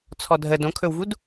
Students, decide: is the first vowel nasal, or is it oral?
oral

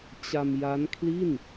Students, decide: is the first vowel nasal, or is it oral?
oral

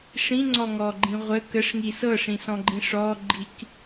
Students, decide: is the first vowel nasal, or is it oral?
nasal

